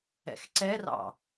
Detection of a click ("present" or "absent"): present